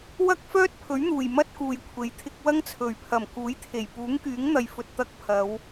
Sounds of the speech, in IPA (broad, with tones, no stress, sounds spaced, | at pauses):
w ɐ˥ k̚ f œː˥ t̚ pʰ ɵ˨˥ ɥ n̪ uː˨˩ j m ɐ˥ t̚ k uː˨ j kʷʰ e˨˥ j t̪ʰ ɪ˧ k̚ w ɐ˥ ŋ t͡sʰ ɵ˨˩ ɥ pʰ ɐ˨˩ m k uː˨˥ j t̪ʰ e˨˩ j p uː˨˥ ŋ k yː˨˥ ŋ n̪ ɐ˨ j f ɵ˨ t̚ t̪ ɐ˧ k̚ pʰ ɐ˨˧ w